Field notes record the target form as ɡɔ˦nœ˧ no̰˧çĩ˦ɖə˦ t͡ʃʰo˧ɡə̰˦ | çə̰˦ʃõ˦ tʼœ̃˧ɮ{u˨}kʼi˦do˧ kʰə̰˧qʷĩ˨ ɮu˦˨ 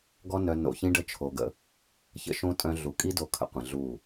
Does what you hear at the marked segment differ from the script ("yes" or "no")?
no